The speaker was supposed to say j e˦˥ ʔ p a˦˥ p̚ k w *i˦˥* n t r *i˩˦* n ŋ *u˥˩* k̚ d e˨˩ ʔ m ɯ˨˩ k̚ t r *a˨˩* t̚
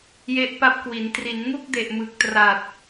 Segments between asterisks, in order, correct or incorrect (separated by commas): incorrect, correct, correct, correct